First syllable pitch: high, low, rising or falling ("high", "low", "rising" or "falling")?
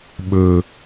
high